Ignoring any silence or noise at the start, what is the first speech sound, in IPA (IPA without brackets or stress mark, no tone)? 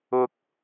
ʊ